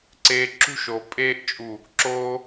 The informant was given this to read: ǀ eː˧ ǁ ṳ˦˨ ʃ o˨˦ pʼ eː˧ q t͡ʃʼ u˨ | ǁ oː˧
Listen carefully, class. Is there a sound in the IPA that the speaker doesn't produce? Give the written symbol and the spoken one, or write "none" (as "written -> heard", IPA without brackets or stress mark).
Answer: q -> ʔ